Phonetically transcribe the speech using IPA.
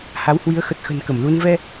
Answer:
h a˨˦ w h w i˨˦ ə̯ x ə˨˩ t̚ x ə̤˨˩ n k ə˧˩ m l u˧ n v ɛ˧

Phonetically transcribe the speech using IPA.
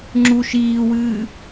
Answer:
ŋ͡ǁ u ʃ iː w ɨː

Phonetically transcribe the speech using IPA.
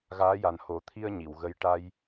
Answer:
ɣ aː˧˥ j a˨˩ n h o˨˩˦ t̪ʰ i˧ ə̯ ɲ i˨˩˨ w ɣ ə˧˥ j ʈ a˧ j

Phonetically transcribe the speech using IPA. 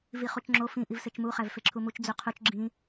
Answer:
v i χ u t͡ʃ ŋ͡ǁ o f ĩ ʔ i v s e t͡ʃ m u χ æ v f e ǁʰ u m u t͡ʃ d͡z u qʰ u t͡ʃ ɡ͡ǁ ĩ

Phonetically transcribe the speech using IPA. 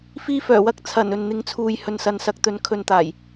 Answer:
f iː˧ f œː˨˩ w ɐ˧ k̚ t͡sʰ ɐ˨˩ n ɵ˨ n n̪ ɪ˨˧ ŋ t͡sʰ uː˨ j h ɵ˨ n s ɐ˨ n s ɐ˨˥ k̚ t̪ ɵ˨˥ n kʰ ɵ˨ n t̪ aː˨˩ j

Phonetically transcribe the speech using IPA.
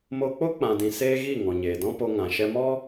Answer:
m o˧ k͡p o˦ k͡p ã˨ d ĩ˨ s eː˦ ɣ i˦˨ ŋ ɔ̃˨ ɲ eː˨ d ɔ̃˦ p o˧ ŋ ã˨ ʃ ɛ˧ m ɔ˦

